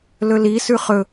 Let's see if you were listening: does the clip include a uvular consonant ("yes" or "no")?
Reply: yes